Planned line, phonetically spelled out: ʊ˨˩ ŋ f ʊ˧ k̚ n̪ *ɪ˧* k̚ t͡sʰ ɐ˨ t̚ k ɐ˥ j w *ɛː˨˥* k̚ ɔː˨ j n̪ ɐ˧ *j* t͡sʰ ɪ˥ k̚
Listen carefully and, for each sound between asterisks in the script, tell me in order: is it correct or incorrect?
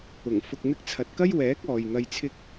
correct, correct, correct

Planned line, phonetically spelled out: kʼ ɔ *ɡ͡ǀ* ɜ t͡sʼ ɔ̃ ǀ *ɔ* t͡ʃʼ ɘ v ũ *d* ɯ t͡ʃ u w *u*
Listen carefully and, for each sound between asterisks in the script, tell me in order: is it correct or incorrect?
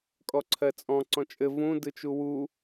incorrect: ǀʰ, incorrect: ɔ̃, correct, correct

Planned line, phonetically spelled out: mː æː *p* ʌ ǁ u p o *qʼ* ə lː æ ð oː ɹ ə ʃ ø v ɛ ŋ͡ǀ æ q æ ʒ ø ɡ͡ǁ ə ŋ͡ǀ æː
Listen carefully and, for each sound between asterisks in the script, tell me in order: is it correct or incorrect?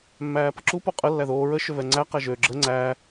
correct, correct

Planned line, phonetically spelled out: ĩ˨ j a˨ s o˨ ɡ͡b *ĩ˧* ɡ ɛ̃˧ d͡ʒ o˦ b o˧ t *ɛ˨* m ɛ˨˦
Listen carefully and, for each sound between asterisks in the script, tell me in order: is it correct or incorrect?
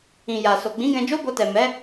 incorrect: ĩ˨˦, correct

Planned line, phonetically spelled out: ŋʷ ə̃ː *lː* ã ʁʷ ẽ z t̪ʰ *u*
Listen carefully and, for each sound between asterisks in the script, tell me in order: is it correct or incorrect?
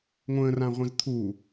incorrect: r, correct

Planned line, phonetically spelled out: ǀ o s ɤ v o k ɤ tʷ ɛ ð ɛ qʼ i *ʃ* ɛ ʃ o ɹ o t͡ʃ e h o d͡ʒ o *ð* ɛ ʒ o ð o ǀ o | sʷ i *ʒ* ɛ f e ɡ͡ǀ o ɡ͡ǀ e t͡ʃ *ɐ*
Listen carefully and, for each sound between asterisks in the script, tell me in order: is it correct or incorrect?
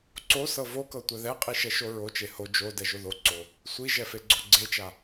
correct, incorrect: d, correct, incorrect: a

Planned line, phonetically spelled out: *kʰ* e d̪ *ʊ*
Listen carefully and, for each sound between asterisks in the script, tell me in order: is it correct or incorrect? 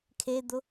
correct, correct

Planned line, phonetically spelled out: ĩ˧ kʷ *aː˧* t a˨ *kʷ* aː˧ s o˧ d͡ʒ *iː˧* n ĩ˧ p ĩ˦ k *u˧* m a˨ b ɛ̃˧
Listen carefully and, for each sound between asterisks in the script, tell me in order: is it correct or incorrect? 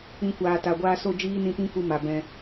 incorrect: aː˨, incorrect: ɡʷ, incorrect: iː˦, correct

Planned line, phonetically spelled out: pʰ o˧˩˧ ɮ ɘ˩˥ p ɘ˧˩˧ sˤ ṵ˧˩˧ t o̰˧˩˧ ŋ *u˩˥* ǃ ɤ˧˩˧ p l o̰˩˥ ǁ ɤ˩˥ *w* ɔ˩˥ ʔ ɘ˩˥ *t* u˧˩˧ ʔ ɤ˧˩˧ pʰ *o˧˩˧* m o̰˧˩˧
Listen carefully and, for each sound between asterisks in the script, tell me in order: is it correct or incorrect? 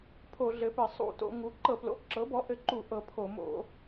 correct, incorrect: b, incorrect: ǃ, correct

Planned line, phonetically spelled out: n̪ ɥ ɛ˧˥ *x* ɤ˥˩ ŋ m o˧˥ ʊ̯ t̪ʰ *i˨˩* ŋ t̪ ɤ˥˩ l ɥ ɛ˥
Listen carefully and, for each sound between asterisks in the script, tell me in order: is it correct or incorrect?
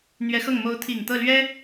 correct, correct

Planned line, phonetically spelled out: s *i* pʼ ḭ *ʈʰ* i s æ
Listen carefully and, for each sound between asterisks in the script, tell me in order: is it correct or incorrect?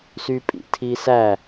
incorrect: y, incorrect: tʰ

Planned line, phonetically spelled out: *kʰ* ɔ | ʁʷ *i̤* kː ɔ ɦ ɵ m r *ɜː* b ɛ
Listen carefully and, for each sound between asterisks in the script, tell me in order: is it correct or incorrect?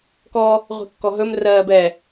incorrect: k, correct, correct

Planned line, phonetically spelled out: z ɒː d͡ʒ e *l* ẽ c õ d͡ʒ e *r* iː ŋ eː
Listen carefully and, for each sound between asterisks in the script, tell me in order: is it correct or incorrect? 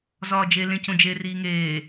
correct, correct

